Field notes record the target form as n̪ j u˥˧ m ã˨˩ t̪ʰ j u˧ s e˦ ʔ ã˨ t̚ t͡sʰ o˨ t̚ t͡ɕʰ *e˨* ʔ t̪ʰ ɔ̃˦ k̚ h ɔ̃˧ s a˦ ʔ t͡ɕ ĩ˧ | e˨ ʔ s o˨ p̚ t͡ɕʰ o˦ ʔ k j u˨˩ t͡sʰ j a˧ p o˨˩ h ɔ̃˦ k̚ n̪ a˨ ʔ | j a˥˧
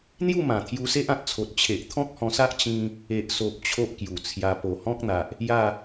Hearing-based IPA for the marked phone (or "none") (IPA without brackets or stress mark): e˨